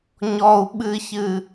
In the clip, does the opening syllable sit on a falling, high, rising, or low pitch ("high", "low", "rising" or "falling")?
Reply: high